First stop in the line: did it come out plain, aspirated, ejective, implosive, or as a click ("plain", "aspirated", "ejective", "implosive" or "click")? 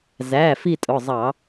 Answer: ejective